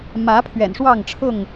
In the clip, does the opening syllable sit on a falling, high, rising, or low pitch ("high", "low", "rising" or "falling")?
rising